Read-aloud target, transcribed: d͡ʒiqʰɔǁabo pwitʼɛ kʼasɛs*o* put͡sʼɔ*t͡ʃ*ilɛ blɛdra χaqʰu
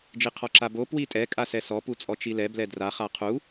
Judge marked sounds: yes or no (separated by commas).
no, yes